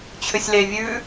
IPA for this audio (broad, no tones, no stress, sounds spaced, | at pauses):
t͡ɕʰ ʏ sʲ l e vʲ ʉ